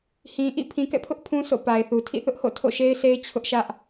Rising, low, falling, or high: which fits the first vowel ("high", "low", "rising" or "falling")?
low